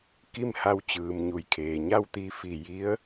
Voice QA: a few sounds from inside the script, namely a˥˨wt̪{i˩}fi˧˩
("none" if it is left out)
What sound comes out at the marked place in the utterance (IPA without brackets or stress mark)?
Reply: i˧